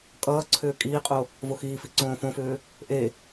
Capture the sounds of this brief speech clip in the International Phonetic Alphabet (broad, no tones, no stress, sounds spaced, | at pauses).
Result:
kʼ ʌː ǀʰ ʏː kʼ iː qʼ o | v o x iː f i ǀ õː f õ f ʏː | ʔ e